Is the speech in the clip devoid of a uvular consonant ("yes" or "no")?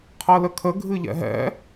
no